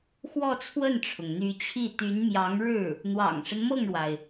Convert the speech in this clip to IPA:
x w ɔ˥˧ t͡sʰ w ə˥˩ n ʈ͡ʂʰ ʊ˩ ŋ n̪ y˧˥ t͡ɕʰ i˥˩ t̪ y˧˥ n m j ɑ˧˥ ŋ ɻ ɻ̩˥˩ | n̪ w ɑ̰˨˩ ŋ ʂ ə˦ n m ɤ˥˩ ŋ ɻ w a˩ ɪ̯

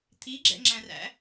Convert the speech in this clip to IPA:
t̪ʰ i ɡ͡ǁ ɛ̰ ŋ͡ǁ æ̃ r æ̰

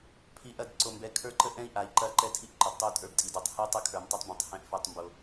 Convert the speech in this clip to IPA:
pʰ i˨ ʔ ɐ˦˨ d ǀ o˨ m b ɛ˨˦ kʰ ə˞˦ ǃ ə˦ ʔ ɛ̃˦ i̯ ʔ a˨ i̯ ǃ ɐ˦ ǃ ɛ˦ tʰ i˦ ʔ ǃ ə˨ d tˤ o˦˨ tʼ ə˞˦ b tʼ i˨ d o˦˨ tˤ h i˦ tˤ o˦ kʰ ə˞˨ m tˤ ɛ˦ tˤ b ĩ˨ tˤ h ɛ̃˦ ʔ f ɵ˦˨ tˤ m b o˦

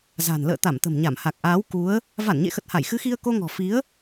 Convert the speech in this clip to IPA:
z a̤˨˩ n l ə̰ː˧˨ t̪ a˧˩ m t̪ ə̤˨˩ m ɲ a˧˩ m h a˨˩ k̚ ʔ aː˨˦ w k u˨˦ ə̯ | v a˧˩ n ɲ ḛ˧˨ x ə˨˩ t̚ h a˧˩ j x ɨ˨˦ x i˧ ə̯ k o˧ ŋ ɔ̤˨˩ f i˨˦ ə̯

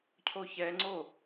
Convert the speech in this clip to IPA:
cʰ o ç ɛ ŋ͡ǀ o

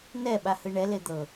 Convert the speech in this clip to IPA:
n ɛ ɓ a h ɯ ɳ ɛ l e d̪ ɤ

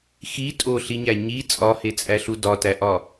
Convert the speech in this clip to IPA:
x i tʼ o ɬ i ɲ æ ɲ i t͡sʼ ɒ h e t͡sʼ æ ɬ u d ɒ t æ ʔ ɒ

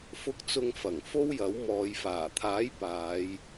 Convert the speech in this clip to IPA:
f ʊ˧ k̚ t͡s ʊ˧ ŋ f ɐ˨˩ ŋ f o˥ w j ɐ˨˥ w m ɔː˨˧ j f aː˨˩ t̪ʰ aː˨˥ j p aː˨˧ j

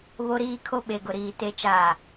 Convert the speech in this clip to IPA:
β o˦ ɾ iː˦ kʰ o˦ ɓ e˨ ɡ ʊ˨ ɾ iː˨ t e˨ t͡ʃ aː˨

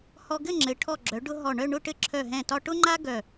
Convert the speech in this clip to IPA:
h ɔ˧ ɡ ɘ˥˧ ŋ͡ǁ ɘ˩˧ ʈʰ ɔ˧˩ ɡ͡ǁ œ˩˧ ɖ ʊ˧ ɦ ɔ˧˩ ɳ œ˥˧ ɳ ʊ˥˧ ʈ ɘ˥˧ ǁʰ œ˧˩ ɦ ɛ̃˧˩ t ɒ˧ ʈ ʊ˥ ŋ͡ǃ a˥ ɡ œ˧˩

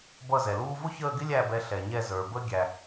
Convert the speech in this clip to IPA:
b ʌ˦˨ z ɛ˩ l uː˥ v ʊ˥ ç əː˦˨ ɡ ɪ˥ lʲ æ˦˨ b ɛ˨˦ ɬ ɛ˩ ɲ ɛ˦˨ z ə˞˩ b ə˥ ɡʲ æ˩

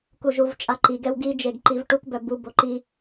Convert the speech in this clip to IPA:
k u ʒ u v t͡ʃʼ a ǃ i ɡ ɛ w ɡ i d͡ʒ e ɡ ǃ i v ʈ u k b œ b u b o ǃ i

